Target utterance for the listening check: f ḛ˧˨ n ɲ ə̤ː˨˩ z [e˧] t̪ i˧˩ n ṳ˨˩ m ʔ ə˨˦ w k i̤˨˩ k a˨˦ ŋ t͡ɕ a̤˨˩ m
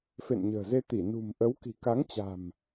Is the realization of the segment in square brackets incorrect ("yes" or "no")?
no